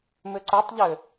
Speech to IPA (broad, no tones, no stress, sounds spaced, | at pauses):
m ʏ ǀ ɵ tˤ ʎ ʏ